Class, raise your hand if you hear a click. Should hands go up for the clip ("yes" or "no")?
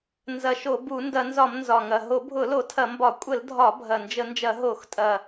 no